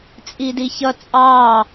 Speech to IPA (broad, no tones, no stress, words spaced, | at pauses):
t͡sʼidiçʌ t͡sʼɑ